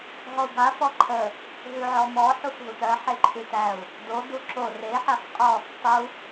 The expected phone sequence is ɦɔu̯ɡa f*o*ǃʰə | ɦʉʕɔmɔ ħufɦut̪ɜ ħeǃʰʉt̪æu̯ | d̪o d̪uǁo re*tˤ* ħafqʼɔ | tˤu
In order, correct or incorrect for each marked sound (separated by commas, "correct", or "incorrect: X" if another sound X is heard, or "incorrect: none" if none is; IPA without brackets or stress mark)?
incorrect: ɔ, incorrect: none